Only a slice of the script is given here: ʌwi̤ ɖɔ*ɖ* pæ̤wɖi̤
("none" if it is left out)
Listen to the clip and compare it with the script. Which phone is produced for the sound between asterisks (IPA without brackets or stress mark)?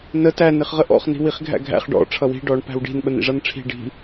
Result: ɳ